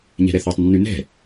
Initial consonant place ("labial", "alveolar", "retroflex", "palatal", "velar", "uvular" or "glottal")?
palatal